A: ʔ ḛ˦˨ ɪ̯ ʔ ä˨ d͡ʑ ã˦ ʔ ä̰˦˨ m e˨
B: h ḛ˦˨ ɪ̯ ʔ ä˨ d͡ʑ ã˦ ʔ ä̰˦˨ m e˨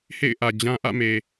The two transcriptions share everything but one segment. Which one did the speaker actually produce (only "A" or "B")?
B